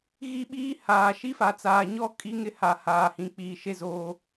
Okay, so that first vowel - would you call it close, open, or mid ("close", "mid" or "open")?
close